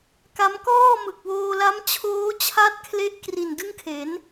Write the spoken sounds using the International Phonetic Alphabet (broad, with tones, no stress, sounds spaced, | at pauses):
k a˦˥ m k ɔː˥˩ m ɯ˨˩ k̚ w oː˧ l a˦˥ m t͡ɕʰ oː˦˥ t͡ɕʰ a˦˥ t̚ kʰ l e˥˩ ʔ k r i˨˩ n d ɯ˥˩ ŋ kʰ e˩˦ n